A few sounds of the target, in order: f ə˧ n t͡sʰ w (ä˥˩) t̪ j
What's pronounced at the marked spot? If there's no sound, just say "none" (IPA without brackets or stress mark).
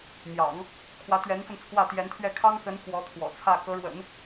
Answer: ä˥˩